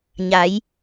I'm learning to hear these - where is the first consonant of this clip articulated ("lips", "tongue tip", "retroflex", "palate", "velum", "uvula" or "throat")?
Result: palate